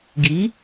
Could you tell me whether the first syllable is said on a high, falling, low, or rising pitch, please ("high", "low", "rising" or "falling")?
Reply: rising